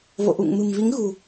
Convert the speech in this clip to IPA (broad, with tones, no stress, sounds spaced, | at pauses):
v o̰˧˨ ʔ ṵ˧˨ ŋ m ɨ̤˨˩ m v i˨˦ ŋ ɣ ṳ˨˩